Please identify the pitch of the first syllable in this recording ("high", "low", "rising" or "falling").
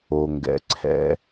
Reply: low